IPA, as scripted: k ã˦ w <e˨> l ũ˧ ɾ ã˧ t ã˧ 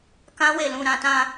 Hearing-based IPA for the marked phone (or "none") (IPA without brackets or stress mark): e˧